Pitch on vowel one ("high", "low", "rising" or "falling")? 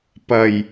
low